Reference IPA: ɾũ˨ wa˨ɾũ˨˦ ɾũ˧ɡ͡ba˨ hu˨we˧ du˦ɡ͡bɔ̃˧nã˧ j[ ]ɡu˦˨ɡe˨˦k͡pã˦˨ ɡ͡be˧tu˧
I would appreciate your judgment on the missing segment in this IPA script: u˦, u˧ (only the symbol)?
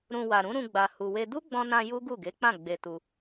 u˦